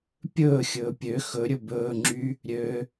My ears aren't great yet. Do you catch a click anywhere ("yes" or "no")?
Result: yes